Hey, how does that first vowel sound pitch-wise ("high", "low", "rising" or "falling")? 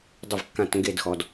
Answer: falling